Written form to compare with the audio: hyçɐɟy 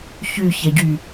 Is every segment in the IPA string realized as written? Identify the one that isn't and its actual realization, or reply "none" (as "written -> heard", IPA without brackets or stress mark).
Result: h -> ç